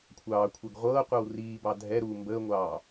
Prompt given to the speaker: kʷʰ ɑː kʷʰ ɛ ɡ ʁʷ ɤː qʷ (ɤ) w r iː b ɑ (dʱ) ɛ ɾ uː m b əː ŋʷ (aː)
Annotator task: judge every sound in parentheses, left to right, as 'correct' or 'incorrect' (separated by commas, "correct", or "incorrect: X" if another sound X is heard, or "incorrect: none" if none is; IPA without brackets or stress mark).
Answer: correct, correct, incorrect: ɑː